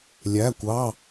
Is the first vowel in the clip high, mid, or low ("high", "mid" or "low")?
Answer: low